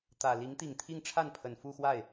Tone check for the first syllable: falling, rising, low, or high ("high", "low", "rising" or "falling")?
low